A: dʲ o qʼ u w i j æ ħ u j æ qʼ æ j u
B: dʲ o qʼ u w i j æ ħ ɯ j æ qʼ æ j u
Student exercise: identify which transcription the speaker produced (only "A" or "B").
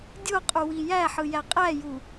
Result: B